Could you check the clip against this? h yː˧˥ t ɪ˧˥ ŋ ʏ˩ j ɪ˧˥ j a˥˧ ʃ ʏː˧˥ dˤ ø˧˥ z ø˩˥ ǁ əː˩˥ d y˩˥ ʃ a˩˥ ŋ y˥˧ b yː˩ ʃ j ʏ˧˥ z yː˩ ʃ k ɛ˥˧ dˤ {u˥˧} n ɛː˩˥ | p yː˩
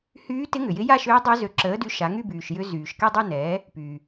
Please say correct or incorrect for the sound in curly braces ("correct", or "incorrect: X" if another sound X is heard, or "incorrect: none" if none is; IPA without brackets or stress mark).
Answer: correct